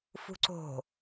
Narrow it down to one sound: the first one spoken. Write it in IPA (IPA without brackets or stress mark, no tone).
f